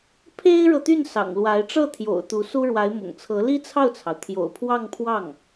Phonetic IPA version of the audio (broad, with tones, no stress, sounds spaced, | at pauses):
pʰ e˥ ɪ̯ ɻ ɤ˨ t̪ y˥˩ n s ɑ̰˨˩ ŋ l w a˧˥ ɪ̯ ʈ͡ʂ ɤ˥˩ t̪ʰ j o̰˨˩ ʊ̯ t̪ u˧˥ s u˥ ɻ w a˧˥ ɪ̯ m ʊ̰˨˩ ŋ t͡sʰ ɤ˧˥ l i˥ t͡sʰ ɑ˥˩ ʊ̯ t͡sʰ ɑ˩ ʊ̯ t̪ʰ j o̰˨˩ ʊ̯ pʰ w ɑ˥˧ ŋ pʰ w ɑ˥˩ ŋ